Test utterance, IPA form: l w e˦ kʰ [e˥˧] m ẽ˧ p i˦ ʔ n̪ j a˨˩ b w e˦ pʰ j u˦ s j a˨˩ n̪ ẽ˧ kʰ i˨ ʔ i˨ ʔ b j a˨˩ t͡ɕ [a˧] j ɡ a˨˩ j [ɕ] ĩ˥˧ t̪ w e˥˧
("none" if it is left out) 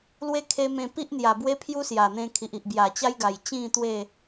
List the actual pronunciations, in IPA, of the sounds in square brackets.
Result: e˧, a˦, t͡ɕ

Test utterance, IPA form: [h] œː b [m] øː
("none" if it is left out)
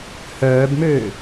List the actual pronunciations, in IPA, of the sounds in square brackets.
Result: h, m

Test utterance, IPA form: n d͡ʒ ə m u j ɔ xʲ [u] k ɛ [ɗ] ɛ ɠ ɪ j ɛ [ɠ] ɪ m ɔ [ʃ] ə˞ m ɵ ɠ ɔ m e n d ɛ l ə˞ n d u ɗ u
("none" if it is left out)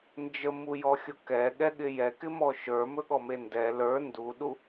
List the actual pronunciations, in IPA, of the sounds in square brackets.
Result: o, ɠ, k, ʃ

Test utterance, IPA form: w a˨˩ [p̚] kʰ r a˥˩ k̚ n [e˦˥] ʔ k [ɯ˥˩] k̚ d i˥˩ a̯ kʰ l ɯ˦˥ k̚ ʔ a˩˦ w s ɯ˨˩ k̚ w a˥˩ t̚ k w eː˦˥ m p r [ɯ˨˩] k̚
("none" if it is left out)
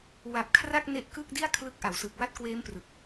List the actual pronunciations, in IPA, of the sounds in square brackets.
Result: p̚, e˦˥, ɯ˥˩, ɯ˨˩

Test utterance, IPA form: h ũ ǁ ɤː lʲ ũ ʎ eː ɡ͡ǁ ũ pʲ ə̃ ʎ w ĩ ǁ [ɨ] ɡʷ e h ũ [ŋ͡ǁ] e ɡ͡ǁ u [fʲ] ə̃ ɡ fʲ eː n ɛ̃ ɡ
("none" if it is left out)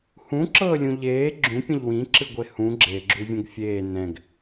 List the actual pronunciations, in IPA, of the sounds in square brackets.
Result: ɨ, ɡ͡ǁ, vʲ

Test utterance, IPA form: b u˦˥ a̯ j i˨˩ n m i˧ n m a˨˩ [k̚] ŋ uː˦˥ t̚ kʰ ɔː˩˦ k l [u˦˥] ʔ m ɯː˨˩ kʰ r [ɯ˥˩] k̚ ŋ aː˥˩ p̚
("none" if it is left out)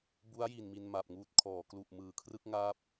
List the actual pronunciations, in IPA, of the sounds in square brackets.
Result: p̚, u˨˩, ɯ˥˩

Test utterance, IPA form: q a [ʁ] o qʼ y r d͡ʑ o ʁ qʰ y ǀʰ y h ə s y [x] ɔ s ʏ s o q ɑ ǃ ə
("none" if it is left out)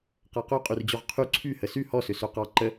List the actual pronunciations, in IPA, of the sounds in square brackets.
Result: q, h

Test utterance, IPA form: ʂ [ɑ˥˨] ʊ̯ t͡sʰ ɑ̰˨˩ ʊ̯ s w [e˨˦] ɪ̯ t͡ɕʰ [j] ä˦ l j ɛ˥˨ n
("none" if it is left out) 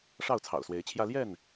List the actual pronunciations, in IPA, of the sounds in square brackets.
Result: ɑ˥˨, e˨˦, j

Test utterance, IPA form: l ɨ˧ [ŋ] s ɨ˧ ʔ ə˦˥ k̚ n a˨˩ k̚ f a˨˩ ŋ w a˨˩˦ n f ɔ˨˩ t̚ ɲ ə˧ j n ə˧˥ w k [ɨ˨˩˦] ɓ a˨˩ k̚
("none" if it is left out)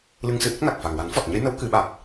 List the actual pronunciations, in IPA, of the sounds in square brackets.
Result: ŋ, ɨ˨˩˦

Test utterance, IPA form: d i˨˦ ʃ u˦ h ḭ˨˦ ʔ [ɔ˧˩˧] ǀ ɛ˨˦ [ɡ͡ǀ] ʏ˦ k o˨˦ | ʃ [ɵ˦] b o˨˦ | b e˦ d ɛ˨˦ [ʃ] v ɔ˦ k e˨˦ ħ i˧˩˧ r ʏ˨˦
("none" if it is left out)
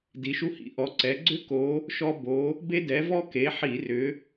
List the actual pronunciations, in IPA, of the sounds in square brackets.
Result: ɔ˨˦, ɡ͡ǀ, ɔ˦, none

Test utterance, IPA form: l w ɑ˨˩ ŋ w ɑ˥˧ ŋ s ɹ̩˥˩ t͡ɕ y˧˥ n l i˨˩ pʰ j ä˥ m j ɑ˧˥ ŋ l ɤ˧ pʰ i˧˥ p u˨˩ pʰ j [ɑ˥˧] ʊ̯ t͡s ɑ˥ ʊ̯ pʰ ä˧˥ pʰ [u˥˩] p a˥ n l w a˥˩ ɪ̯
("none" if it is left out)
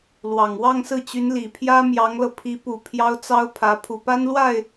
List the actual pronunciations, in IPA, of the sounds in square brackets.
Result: ɑ˥, u˨˩

